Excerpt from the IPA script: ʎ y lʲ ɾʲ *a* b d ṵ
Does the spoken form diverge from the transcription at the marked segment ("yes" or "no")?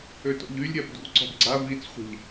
no